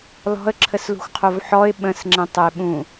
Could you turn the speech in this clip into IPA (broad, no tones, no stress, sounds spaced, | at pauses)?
l ɔ̤ ə̯ ǁʰ ə s l ṳ xʷ qʰ o v ħ ɔ ɪ̯ ɓ ə̃ s ŋ͡ǁ ɛ̃ tˤ ə ɪ̯ ɓ ũ